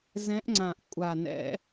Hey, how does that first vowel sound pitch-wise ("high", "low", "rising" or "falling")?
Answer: rising